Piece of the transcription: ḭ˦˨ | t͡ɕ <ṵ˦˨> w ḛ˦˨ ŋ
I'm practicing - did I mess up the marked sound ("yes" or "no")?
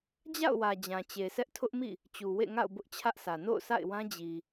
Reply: yes